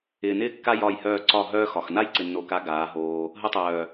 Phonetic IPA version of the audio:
ɪː˨nɪː˦kːa˦ jɒ˦˨jhœː˦˨ ǀɒ˦˨ɦœː˦xɒ˨x na˦jǀɪ˨nːo˨ka˨˦ ɡaː˨˦ɦoː˧ | ɦə˧tˤœː˨

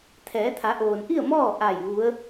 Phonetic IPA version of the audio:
t̪ʰɛː˩˧t̪ʰa˩˧ʔoː˩nʔi˥˨ə̯ mɔː˥˨ʔa˧˩j ʋu˧˥ə̯

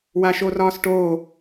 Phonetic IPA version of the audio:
waʃorɒːsʈo

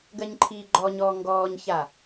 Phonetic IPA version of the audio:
ɡɜɲǃʰiːɡ͡ǃɔɲɔː ŋɡɔːɲça

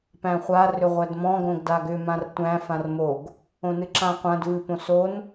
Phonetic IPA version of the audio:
pæ̃χʷa rʏʁʷædmɔ̃ ɡõɡdaɡʏ mãrtʷæ̃ fãrmoɡ | õnɨǁãqʷãd vɨpõson

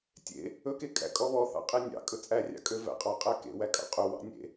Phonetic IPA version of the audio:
tʲḛ | ɵke kʼæ̰kʼɔβɔθɑ̰ qʼenʲɑ̰ kʼɵt͡sʼærʲɑ̰ kʼøvæ̰qʼɑ qʼækḛ wækʼɑ̰qʼɵ wɑ̰nʲḛ

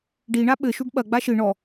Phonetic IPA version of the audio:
ɖiɳa ɓɘʃuɖ ɓɐɡ͡ba ʃɨ ɳɔ

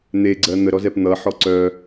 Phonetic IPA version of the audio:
n̪eɡ͡ǀɜ n̪əɾɔzɛp n̪ʌħɔ ǀœ

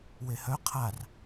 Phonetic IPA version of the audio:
wehœ qʰar

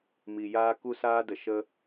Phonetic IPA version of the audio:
mi˨jaː˦ ku˦saː˦də˨ ʃə˦

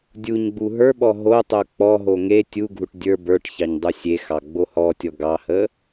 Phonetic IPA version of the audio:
dʲuɲɡ͡bu ɦə˞ɓɔ ɦotˤo k͡pɔɦo ŋe tʲuɡʱuʈ dʲə˞ bə˞ʈ çɑɲdˤusʲexɑ ɡ͡bohɔtʲɔ ɡɑhə

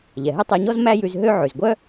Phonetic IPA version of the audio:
ʎɛ˩ɦɛ˥tˤæ˧ɲɔ˥z mæ˥jʉ˧z ɦø˥ ʕʉ˩zɡʷœ˥

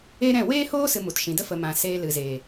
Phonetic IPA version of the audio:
e˦ɾɛ̃˦˨ weː˦hoː˦ sɨ˧mu˨tʃĩ˨ də˦fə˨mã˨ seː˧lɨ˨zeː˨

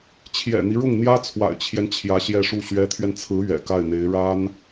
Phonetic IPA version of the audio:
t͡ɕʰjɛ̰˨˩n̪i˦ ɻʊ˥˩ŋn̪jä˥t͡sʰwa̰˨˩ɪ̯t͡ɕʰjɛ˦n t͡ɕʰjä˧˥ɕjɛ˥˧ʂu˥˩ ɕɥɛ˧˥t̪ʰɥɛ˧nt͡sʰɹ̩˧˥ ɥɛ̰˨˩ka˥˩ɪ̯n̪e˧˥ɪ̯ ɻa˥n

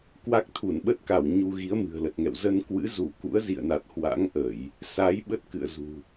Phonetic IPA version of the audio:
kwa˦˥k̚t̪ʰu˧˩nɓə˦˥t̚ka˧˩w ɲu˧ɣi˨˦ə̯ mɨ̤˨˩ə̯lə˨˩t̚ŋɛ̰˧˨w zə˧nkwɨ̰˧˥ zu˧˩kṵ˧˥ə̯ zḭ˧˨ə̯na˨˩t̚ hwa̰˧˥ŋʔə˧˩˨j | sa˨˦j ɓə˦˥t̚kɨ̰˧˨ə̯ zṳ˨˩

